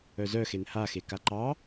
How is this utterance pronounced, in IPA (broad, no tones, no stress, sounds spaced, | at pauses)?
œ z œ x e n h a x e k a ǃ ɑ